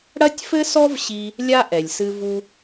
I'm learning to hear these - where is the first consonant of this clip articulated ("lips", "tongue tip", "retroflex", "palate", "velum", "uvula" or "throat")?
retroflex